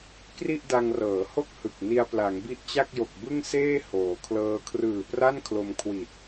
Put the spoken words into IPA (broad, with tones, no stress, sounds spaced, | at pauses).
k r i˥˩ ʔ d a˧ ŋ r ɤː˩˦ h o˥˩ k̚ h ɯ˨˩ k̚ n i˧ a̯ p l a˩˦ ŋ b i˦˥ ʔ t͡ɕ a˥˩ k̚ j o˨˩ k̚ b ɯ˥˩ ŋ s eː˥˩ h oː˩˦ kʰ l ɤː˦˥ kʰ r ɯː˨˩ p r a˥˩ n kʰ l o˧ m kʰ w i˨˩ t̚